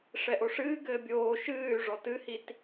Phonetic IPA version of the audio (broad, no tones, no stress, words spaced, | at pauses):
ʂɛʔoʂɨːɡɘː bʲoː ʃɨːy̯ ʐɔtɨhit